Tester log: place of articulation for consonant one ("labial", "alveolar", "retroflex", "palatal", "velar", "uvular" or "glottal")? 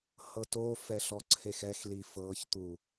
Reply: glottal